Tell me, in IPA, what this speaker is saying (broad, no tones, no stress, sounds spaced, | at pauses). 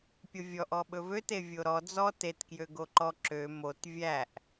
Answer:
pʲ o vʲ ɔ ʔ ɔ ɓ ɵ v ø t e vʲ o ɾ ɔ d͡z ɔ t e t k j ø ɡ o ǃ ɔ ǁ ø m o t vʲ æ ʔ